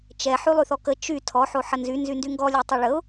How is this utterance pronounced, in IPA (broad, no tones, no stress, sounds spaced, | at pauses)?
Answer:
t͡ʃ ɛ ħ y lˠ y θ ɔ k ə t͡ʃ y tʰ ɔ ħ o ħ ə n z y n z y n d y ŋ ɡ ɔ lʲ a tˤ œ ɭ ə ʊ̯